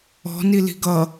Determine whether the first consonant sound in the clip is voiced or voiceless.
voiced